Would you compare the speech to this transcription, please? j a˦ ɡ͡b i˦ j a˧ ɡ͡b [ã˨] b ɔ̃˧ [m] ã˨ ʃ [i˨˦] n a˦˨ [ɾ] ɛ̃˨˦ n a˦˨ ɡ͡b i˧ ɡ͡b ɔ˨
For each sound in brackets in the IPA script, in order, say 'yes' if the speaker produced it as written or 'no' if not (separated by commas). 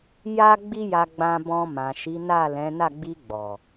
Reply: no, yes, yes, no